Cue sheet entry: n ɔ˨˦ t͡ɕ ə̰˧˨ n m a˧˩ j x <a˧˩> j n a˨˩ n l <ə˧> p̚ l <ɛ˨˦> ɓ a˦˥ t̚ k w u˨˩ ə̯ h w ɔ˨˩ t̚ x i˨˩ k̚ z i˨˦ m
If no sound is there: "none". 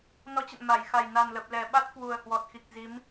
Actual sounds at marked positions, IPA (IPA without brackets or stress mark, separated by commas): a˨˩, ə˨˩, ɛ˨˩